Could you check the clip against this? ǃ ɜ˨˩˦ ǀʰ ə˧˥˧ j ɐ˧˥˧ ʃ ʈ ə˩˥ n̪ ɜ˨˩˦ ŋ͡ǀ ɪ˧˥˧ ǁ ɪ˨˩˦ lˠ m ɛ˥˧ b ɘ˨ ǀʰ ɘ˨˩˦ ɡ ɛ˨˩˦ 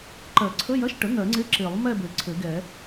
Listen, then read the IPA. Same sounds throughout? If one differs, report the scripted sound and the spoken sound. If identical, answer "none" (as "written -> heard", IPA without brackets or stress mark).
none